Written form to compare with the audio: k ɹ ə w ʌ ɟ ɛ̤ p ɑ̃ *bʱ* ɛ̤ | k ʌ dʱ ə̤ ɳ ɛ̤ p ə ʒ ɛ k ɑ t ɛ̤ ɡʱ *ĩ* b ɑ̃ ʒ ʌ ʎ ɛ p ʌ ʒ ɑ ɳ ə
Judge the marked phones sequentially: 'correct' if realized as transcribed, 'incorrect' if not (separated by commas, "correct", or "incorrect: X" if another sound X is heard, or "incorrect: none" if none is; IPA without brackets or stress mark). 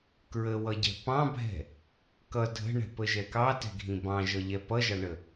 correct, correct